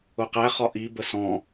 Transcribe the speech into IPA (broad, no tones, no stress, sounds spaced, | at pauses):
ʊ q æ χ ɒ ʔ i b ə s ɔ̃